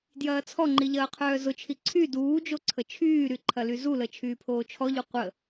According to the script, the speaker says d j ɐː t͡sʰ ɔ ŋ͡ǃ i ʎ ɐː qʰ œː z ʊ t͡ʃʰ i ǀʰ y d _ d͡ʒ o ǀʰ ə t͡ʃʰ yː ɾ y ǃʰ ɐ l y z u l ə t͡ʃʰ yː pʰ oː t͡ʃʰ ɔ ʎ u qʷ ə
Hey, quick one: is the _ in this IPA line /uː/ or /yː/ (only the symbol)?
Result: uː